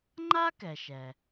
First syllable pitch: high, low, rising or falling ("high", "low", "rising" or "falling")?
high